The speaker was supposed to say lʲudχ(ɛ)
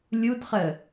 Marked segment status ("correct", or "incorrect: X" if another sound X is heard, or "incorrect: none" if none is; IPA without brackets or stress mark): incorrect: ə